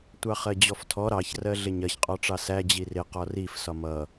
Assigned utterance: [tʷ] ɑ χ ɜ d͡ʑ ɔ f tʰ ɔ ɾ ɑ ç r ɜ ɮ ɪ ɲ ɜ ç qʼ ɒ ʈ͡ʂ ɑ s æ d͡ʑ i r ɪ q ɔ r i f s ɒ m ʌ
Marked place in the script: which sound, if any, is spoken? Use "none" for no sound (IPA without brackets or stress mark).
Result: tʷ